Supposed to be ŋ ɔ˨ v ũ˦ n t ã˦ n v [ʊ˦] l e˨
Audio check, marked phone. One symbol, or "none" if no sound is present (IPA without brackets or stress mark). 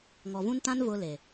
ʊ˦